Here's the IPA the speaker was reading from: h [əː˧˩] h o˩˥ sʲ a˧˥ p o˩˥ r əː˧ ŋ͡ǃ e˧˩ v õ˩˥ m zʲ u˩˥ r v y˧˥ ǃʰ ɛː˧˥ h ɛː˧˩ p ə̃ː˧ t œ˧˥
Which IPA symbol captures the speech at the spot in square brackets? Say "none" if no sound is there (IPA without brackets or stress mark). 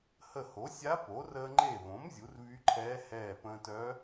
ə˧˩